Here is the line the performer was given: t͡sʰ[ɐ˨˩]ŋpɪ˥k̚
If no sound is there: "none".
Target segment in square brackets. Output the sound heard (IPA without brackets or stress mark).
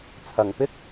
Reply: ɐ˨˩